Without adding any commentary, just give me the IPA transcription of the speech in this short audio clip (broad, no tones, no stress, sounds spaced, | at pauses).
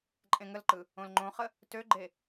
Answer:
ǃʼ ẽ ŋ ə l ǃ ɯ | õ l ŋ͡ǃ õ χ ə | t ø ɡ͡ǃ e